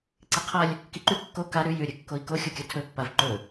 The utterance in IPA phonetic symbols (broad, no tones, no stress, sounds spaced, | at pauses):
ǀ i qʰ ɐ lʲ | k i ǃ ʉ kː o k a ɾ ʉ j ʉ ɾʲ ɨ kː o i̯ k o xʲ u kʲ ɐ tʰ ɵ pː a v ǃ ɵ